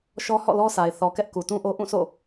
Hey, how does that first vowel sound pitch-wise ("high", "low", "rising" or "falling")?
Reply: high